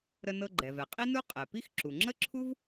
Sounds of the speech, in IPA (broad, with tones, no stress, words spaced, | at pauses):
ɾə˧nɤ˧ ɡ͡ǃɛ˩vɛ˩qʼi˥nu˥ qʼɛ˩pi˥x ǁu˩ŋ͡ǁə˥ǁʰu˥v